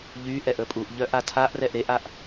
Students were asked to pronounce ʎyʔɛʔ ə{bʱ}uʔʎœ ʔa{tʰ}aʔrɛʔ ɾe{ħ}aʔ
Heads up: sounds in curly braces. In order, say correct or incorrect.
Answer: incorrect: pʼ, correct, incorrect: ʔ

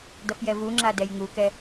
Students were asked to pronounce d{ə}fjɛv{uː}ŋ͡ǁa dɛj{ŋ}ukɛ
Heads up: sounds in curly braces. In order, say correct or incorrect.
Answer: incorrect: ʌ, incorrect: u, correct

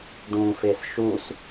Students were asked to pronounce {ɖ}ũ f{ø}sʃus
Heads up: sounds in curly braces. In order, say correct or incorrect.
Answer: correct, incorrect: e

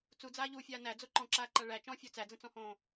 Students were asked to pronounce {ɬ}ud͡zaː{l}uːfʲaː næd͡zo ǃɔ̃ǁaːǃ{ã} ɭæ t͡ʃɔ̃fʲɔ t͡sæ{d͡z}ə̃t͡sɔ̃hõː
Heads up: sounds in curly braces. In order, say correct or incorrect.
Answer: incorrect: t͡s, incorrect: ʎ, incorrect: a, correct

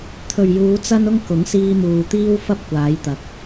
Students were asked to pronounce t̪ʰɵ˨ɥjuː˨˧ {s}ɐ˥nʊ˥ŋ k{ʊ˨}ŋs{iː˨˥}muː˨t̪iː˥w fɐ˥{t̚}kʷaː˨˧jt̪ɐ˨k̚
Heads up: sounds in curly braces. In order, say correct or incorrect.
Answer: incorrect: t͡s, incorrect: ʊ˨˥, incorrect: iː˧, incorrect: p̚

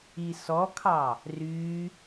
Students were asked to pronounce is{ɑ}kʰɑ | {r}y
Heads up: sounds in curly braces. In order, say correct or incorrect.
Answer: incorrect: ɔ, correct

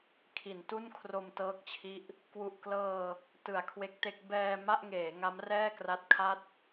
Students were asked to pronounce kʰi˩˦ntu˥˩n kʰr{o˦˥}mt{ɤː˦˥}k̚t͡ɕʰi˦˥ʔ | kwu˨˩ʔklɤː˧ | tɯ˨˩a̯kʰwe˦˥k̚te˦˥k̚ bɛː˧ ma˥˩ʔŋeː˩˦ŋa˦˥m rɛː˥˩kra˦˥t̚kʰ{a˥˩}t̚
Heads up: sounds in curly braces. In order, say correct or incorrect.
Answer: incorrect: o˧, correct, correct

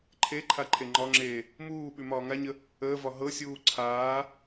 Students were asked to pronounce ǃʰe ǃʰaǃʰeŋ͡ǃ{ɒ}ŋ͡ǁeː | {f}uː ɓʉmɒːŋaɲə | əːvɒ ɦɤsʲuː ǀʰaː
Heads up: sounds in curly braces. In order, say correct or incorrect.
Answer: correct, incorrect: m

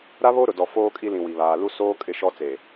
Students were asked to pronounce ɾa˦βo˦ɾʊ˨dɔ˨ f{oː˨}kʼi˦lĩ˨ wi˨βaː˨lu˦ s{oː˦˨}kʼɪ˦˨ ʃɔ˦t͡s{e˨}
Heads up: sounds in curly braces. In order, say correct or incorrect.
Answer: incorrect: oː˦, incorrect: oː˦, correct

